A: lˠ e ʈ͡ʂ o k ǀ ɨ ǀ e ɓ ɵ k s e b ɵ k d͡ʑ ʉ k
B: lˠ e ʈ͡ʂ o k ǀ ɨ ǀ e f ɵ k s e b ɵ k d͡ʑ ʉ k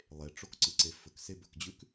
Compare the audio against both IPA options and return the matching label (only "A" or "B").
B